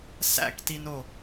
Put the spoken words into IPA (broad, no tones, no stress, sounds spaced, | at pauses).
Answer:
s æ̰ k t i n o